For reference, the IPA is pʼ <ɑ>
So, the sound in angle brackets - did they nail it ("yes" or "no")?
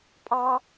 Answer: yes